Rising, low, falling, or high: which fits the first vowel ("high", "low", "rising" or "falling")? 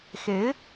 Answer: rising